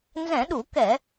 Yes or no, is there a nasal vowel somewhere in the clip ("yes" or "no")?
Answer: yes